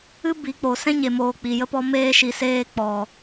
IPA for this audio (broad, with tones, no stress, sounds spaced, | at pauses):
ɨ˦ b i˨˦ k͡p o˨ s ɛ̃˦ ɲ e˨ m oː˨ k͡p i˨ j ə˦ p ɔ˧ m eː˧ ʃ i˨ s eː˧ k͡p ɔ˨